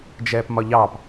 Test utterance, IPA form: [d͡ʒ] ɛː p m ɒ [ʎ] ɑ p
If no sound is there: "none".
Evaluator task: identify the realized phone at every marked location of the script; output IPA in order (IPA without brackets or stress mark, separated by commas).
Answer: d͡ʒ, ʎ